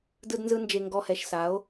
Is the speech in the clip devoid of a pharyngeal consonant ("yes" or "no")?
yes